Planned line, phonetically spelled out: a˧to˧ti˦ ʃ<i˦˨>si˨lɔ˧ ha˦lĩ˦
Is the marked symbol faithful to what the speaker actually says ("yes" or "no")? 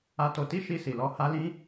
no